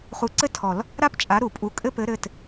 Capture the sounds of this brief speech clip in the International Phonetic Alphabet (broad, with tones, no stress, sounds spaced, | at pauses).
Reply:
χ u˨˥ ǀ ɘ˥˧ tʰ ɔ˨˩˦ l | ɾ a˥˧ p t͡ʃʼ a˨˥ ɾ u˨˩˦ pʼ u˨˥ kʼ ɘ˥˧ p ɘ˨˥ ɾ ɘ˩˧˩ t